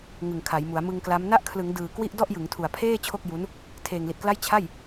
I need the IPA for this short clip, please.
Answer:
ŋ ɯ˨˩ ŋ kʰ a˩˦ j m u˩˦ a̯ m ɯ˧ ŋ k l a˦˥ m n a˦˥ ʔ kʰ l ɯ˩˦ ŋ d ɯː˨˩ k w i˥˩ ʔ d ɔ˥˩ ʔ j ɯ˩˦ ŋ tʰ u˨˩ a̯ pʰ eː˥˩ t͡ɕʰ o˥˩ k̚ j u˦˥ n | tʰ eː˨˩ ŋ l i˨˩ t̚ k l a˥˩ j t͡ɕʰ a˥˩ j

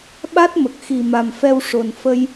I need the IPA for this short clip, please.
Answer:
ɓ a˦˥ t̚ m ə˨˩ k̚ x i˨˩ m a˨˩ m f ɛ˧ w ʂ o˨˩ n f ə˧ j

